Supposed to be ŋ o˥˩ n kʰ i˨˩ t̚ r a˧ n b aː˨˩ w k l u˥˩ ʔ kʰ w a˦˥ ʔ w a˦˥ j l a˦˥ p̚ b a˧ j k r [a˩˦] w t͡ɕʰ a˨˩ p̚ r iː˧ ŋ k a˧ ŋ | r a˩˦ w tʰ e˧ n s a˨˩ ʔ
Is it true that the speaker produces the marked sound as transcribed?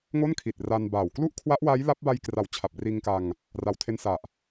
yes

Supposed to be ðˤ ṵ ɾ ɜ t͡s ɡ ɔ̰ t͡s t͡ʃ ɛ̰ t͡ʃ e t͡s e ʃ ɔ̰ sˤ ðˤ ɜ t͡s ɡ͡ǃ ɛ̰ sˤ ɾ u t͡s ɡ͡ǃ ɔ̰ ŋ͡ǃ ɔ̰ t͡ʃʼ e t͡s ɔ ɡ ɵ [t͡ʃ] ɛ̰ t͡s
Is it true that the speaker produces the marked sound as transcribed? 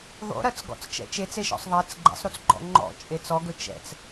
yes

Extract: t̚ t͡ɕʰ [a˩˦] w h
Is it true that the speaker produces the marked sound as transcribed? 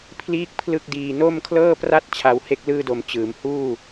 no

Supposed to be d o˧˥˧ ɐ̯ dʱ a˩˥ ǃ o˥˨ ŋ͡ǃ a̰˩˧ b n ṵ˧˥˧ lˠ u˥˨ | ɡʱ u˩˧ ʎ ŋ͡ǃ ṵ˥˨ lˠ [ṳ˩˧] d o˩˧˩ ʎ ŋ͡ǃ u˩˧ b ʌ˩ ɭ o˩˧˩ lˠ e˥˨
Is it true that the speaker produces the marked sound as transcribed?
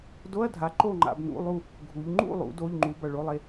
no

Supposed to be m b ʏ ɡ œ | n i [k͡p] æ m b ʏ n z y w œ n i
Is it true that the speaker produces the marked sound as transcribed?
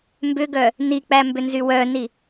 yes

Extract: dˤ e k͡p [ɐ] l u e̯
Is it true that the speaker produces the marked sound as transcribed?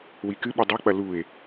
yes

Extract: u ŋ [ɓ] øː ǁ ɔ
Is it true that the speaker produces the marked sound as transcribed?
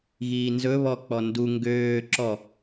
no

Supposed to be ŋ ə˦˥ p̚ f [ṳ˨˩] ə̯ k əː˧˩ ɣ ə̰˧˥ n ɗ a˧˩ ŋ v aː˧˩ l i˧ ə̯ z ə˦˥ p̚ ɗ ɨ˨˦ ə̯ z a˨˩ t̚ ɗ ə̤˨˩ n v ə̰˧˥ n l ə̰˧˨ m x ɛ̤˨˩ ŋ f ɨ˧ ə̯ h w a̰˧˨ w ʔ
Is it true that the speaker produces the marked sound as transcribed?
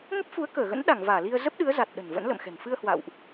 no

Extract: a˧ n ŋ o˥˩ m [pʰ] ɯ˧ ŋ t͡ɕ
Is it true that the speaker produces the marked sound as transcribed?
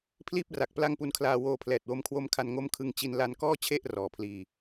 no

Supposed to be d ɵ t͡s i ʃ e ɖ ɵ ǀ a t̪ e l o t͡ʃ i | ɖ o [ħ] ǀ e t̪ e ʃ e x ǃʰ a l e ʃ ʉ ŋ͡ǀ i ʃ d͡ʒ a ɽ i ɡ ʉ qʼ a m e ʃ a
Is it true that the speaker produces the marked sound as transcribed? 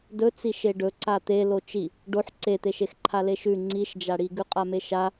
yes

